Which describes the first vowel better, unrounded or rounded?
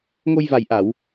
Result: rounded